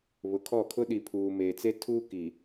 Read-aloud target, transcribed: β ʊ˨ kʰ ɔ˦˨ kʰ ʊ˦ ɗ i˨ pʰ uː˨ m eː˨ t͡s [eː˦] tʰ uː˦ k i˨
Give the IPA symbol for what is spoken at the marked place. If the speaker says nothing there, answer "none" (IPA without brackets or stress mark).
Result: e˦